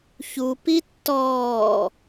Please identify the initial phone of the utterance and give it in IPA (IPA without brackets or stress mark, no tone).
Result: ç